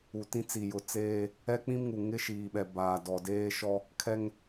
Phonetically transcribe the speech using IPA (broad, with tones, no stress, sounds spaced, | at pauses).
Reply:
u˨ t ĩ˦ t͡s i˨ j ʊ˨ t͡s eː˦ | ɛ˦ k͡p ĩ˦ m ŋ u˨ ŋ ɪ˦ ʃ iː˨ ɓ ɛ˨ b aː˨ d ɔ˨ d eː˦ ʃ ɔ˦ | kʰ ɛ˦ ŋ